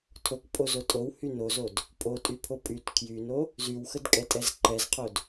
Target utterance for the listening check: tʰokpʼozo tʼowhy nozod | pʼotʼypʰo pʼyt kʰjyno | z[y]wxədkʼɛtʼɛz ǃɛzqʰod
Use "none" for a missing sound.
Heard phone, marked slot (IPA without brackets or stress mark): y